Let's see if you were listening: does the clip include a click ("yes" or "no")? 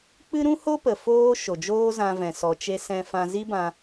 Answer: no